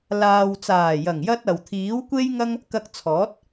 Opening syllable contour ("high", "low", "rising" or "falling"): low